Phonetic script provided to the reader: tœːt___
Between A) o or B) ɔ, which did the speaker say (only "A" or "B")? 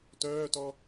B